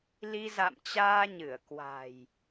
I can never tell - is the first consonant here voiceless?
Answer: no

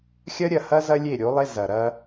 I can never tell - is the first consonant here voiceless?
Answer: yes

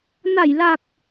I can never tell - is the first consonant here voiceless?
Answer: no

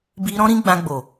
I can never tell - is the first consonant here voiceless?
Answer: no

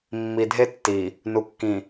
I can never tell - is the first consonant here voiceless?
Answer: no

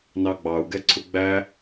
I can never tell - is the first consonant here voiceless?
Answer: no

